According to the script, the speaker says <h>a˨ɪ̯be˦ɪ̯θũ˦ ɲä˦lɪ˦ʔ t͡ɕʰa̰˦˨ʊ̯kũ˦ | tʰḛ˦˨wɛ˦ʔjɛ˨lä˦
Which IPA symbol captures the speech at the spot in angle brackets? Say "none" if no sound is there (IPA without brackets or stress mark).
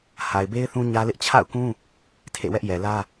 h